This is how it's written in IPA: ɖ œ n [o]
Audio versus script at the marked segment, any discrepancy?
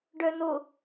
no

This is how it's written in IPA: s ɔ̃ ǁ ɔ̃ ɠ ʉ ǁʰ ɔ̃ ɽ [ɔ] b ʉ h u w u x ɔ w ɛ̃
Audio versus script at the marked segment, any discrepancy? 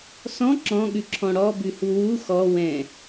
no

